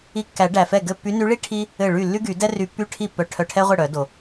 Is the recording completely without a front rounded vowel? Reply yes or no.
no